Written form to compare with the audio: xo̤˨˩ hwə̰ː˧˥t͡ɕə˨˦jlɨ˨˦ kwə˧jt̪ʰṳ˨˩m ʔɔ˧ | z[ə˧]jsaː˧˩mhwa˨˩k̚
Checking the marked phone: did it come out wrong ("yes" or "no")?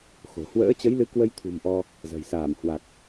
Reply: yes